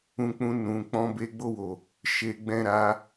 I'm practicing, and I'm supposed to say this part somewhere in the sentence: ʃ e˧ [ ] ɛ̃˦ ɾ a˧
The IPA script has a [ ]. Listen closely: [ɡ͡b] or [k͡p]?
ɡ͡b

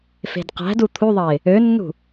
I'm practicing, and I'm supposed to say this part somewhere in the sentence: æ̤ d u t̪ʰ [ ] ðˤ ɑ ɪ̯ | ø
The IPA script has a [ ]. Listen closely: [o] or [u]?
u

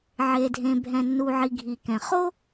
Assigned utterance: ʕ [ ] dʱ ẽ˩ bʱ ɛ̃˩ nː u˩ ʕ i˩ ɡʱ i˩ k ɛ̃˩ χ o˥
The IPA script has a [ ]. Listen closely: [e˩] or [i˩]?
e˩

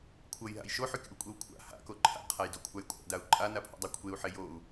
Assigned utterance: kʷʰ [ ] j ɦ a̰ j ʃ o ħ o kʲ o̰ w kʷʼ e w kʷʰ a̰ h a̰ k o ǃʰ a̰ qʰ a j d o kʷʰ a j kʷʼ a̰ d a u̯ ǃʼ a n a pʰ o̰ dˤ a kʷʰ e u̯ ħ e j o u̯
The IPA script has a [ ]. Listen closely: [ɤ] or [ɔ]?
ɤ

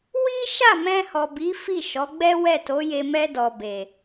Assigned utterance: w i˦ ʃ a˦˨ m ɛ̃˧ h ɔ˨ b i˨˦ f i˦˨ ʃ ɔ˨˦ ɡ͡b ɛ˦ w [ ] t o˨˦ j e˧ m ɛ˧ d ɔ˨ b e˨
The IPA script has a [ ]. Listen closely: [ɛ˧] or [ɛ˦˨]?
ɛ˦˨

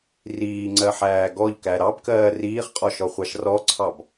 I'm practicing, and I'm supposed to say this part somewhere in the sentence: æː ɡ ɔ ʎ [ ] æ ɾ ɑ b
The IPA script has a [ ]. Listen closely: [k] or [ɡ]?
k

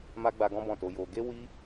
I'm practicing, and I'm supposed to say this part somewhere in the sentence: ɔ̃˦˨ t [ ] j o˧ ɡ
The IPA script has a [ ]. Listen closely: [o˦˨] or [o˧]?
o˧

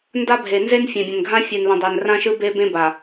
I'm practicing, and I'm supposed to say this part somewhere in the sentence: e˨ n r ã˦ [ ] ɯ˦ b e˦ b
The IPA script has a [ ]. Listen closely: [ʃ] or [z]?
ʃ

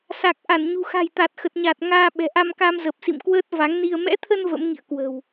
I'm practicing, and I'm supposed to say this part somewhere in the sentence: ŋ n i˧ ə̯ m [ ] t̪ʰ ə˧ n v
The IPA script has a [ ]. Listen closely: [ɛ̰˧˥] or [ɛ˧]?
ɛ̰˧˥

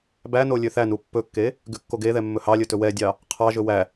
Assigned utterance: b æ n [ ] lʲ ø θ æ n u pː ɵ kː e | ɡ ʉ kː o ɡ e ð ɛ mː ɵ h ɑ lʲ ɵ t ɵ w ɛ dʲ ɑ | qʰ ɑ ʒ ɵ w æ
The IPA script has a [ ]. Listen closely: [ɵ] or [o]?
o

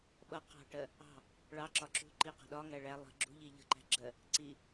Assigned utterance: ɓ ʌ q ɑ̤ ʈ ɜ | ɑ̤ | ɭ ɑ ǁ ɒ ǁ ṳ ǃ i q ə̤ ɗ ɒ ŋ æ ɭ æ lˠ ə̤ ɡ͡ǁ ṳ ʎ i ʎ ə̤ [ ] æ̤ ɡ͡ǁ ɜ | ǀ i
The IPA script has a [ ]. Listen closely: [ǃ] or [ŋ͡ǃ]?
ǃ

